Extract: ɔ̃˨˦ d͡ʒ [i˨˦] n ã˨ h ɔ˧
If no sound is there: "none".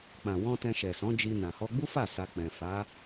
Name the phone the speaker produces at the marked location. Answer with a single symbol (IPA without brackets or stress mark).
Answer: i˧